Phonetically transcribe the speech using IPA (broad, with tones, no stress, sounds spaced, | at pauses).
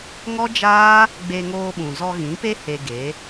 ŋ ɔ˦ d͡ʒ aː˦ | ɡ͡b e˧ ŋ oː˧ ɓ ũ˨ z ɔ˧ ɣ ĩ˨˦ p e˦ h e˧ ɡ e˨˦